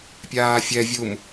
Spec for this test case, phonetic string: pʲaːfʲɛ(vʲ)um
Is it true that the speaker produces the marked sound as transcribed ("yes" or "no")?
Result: yes